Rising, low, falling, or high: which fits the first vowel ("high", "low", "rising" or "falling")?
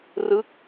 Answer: falling